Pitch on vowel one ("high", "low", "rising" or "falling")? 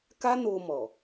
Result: high